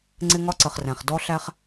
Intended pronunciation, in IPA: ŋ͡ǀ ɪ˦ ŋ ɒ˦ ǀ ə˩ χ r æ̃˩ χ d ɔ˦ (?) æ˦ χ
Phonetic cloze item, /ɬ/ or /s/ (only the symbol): ɬ